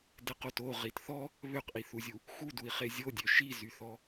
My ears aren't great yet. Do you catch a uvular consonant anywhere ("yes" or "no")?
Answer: yes